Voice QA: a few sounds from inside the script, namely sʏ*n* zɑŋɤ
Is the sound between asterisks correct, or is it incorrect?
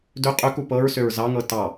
incorrect